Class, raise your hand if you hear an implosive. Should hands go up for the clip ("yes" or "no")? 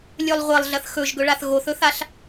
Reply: no